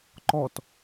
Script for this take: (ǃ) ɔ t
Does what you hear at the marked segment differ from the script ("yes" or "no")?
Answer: no